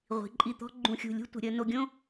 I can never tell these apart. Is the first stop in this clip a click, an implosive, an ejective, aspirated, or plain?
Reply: click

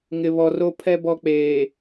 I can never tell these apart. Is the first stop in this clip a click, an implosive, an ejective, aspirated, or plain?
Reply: aspirated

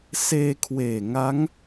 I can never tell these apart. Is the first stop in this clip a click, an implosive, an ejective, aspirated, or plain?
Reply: aspirated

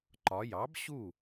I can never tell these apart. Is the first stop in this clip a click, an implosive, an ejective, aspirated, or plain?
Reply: click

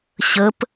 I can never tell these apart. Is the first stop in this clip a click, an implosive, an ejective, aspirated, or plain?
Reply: plain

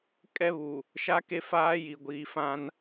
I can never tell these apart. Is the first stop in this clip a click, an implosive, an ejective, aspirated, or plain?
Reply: ejective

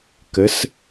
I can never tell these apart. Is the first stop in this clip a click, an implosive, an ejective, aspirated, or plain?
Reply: plain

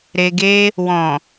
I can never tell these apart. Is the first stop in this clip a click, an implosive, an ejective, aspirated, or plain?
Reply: plain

